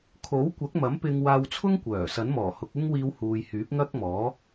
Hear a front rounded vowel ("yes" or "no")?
yes